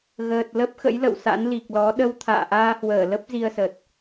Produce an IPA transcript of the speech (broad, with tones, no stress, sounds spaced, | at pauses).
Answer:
ɣ əː˨˩ t̚ l ə˦˥ p̚ x ə̰˧˥ j l ə̰˧˨ w s a̰˧˥ n l i˨˩ k̚ l ɔ˨˦ ɗ ə˧ w t̪ʰ a̰ː˧˨ ʔ aː˧ h w əː˧˩ l ə˦˥ p̚ z i˧ ə̯ s ə˨˩ t̚